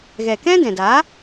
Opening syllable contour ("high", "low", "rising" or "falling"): low